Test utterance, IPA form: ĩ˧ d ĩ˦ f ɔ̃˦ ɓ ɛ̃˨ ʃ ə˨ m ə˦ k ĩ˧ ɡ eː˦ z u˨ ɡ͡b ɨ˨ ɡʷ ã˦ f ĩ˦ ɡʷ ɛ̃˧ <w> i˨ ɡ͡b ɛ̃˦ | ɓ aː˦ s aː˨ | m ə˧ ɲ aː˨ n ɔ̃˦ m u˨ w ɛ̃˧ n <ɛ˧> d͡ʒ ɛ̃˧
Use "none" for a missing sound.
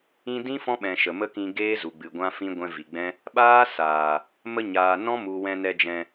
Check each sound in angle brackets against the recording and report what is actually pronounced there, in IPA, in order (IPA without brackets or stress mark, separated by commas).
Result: v, ɛ˧